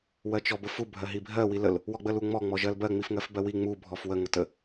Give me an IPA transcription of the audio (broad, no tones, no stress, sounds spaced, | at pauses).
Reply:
w ɜ t͡ʃ ɔ b ə f u bʱ ɜ ɦ i bʱ ɜ w i l ə l | w ɔ ɡ͡b ə l u ŋ͡m ɔ ŋ͡m ɔ ʒ ɜ l b ɜ ŋ͡m i f ŋ ɜ f b ɜ w i ŋ͡m u bʱ ɔ f w ə ŋ ə t ə